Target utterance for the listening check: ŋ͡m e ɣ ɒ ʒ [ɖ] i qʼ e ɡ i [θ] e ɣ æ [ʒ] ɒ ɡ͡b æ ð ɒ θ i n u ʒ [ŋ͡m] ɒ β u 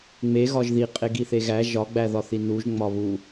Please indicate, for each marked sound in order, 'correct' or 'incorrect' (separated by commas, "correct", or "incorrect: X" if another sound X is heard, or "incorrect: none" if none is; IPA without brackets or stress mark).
incorrect: ð, correct, correct, correct